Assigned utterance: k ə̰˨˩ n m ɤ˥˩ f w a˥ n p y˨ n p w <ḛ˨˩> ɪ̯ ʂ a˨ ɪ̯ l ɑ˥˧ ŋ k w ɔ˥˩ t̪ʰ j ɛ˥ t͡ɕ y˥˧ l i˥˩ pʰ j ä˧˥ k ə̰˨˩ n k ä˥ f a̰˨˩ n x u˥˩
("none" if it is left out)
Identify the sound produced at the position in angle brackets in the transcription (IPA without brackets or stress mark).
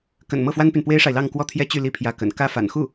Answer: e˥